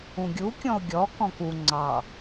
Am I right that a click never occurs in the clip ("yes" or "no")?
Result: no